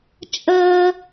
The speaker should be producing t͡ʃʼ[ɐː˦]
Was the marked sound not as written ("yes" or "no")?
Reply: no